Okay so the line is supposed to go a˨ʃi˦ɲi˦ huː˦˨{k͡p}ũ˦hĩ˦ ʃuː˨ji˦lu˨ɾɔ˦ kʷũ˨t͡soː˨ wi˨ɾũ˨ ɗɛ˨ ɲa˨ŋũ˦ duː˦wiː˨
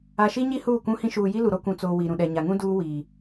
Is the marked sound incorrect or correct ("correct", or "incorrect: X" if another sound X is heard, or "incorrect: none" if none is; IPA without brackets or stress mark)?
incorrect: kʷ